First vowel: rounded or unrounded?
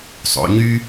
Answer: rounded